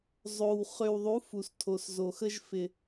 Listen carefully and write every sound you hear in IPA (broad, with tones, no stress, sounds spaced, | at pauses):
zˤ o˨ w χ ø˨ w ðˤ u˨˦ f u˨ s tʰ o˨ s z o˨ x ə˧ ʒ f ɪ˨